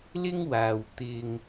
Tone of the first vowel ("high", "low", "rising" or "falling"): high